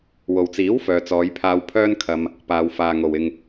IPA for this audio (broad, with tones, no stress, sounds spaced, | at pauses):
w o˨ w t͡s iː˨˥ w f œː˨ t͡s ɔː˨˧ j pʰ aː˧ w pʰ œː˥ n kʰ ɐ˧ m | p aː˨ w f aː˨ ŋ o˨ w ɪ˧ ŋ